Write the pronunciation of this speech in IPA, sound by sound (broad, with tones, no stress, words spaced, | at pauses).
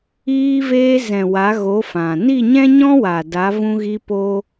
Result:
iː˧veː˧zɛ̃˨ wa˨˦ɣo˨˦fã˨ ni˦˨ɲɛ̃˦ɲɔ̃˦ wa˨da˨˦ vũ˧ɣi˧ poː˦